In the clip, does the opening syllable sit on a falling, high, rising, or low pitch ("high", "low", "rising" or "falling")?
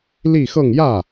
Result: falling